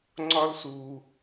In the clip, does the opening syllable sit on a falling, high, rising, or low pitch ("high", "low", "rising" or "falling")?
high